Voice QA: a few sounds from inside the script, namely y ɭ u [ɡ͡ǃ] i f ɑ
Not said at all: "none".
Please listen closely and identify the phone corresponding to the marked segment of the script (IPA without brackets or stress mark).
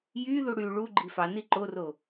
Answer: ɡ͡ǃ